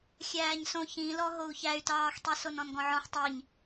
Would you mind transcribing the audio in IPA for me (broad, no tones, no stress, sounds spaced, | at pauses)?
xʲ æː ɲ s õ ç ĩ l ɔ ɦ o u̯ ç æ y̯ t ɑː x tˤ i s o n ɔ̃ n ɡ ɔ̃ ʕ ɔ̃ ħ tˤ i ɲ